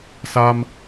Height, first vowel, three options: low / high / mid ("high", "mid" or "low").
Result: low